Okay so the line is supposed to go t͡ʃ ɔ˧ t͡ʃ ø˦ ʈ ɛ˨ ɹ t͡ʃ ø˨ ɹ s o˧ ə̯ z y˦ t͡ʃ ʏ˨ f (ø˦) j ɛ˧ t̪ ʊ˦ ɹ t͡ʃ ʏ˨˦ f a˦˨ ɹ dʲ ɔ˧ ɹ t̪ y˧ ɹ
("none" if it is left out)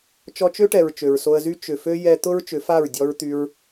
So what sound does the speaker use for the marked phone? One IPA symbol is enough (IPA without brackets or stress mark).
ø˦